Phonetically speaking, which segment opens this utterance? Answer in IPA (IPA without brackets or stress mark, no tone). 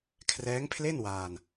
kʰ